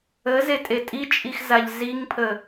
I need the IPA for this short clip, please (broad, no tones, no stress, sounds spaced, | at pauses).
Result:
ə z e tʼ e tʼ i t͡ʃʼ i x z a ʎ z i ŋ pʰ ə